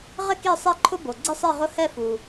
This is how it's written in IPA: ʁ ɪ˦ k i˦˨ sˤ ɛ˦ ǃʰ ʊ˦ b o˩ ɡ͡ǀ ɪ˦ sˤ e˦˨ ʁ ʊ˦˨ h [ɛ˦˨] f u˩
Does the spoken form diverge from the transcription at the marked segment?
no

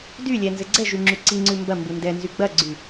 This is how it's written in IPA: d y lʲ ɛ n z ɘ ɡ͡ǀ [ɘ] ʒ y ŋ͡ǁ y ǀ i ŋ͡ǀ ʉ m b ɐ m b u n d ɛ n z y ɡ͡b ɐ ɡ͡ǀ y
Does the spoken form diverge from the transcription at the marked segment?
yes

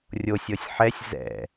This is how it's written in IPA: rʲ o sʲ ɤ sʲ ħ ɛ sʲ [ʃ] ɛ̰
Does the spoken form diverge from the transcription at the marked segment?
yes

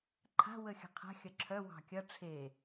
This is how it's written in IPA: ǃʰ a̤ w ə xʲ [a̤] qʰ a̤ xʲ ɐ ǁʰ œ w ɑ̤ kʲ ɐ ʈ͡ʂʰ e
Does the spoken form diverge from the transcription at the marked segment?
yes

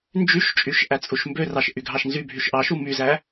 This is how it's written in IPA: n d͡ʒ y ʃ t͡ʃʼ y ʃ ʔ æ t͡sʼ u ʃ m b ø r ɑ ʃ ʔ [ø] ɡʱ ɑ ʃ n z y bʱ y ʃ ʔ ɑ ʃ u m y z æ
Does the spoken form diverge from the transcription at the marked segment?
yes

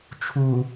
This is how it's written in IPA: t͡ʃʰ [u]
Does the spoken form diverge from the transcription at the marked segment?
no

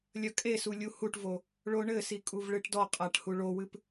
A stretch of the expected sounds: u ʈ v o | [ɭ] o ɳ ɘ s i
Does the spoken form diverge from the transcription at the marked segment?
no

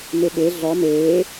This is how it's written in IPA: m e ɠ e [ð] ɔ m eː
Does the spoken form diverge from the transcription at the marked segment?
yes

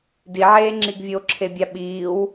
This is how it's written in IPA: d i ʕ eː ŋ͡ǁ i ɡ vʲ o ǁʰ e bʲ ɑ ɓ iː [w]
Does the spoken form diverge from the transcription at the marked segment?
no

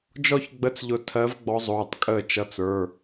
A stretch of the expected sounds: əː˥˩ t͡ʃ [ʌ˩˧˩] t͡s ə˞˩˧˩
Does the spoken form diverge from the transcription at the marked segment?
no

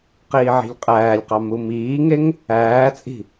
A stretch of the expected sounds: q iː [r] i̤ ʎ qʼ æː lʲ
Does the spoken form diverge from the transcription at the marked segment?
yes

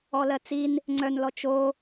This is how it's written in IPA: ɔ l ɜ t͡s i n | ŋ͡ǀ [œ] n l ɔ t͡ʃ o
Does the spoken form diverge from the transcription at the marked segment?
no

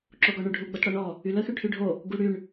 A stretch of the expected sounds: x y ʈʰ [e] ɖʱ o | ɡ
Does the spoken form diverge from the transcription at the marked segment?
yes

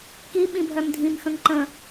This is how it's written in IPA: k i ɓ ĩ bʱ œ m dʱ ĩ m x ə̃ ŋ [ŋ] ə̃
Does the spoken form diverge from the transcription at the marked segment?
yes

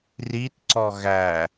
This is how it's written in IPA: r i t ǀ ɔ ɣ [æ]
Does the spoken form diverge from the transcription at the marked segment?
no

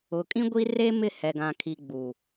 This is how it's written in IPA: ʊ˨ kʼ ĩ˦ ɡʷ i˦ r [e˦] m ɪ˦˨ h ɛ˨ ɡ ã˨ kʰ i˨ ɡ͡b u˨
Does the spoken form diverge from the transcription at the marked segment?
no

